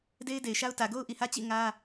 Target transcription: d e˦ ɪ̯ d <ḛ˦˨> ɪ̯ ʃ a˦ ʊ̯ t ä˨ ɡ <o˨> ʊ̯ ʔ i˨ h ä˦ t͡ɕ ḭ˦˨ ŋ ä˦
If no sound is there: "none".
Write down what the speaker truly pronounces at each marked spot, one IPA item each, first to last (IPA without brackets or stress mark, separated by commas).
e˨, o˦